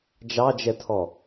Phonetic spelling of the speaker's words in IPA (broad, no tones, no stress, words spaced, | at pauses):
d͡ʒɑd͡ʒɛtʰɔ